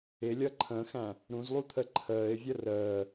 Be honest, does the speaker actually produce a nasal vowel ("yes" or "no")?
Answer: yes